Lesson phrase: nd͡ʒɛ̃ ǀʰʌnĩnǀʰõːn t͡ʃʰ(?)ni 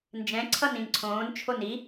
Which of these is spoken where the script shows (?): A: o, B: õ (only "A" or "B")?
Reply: A